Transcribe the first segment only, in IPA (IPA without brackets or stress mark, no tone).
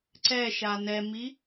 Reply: ǀ